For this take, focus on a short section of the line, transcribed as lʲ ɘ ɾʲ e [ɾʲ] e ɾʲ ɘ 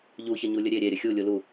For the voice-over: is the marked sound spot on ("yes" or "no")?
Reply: yes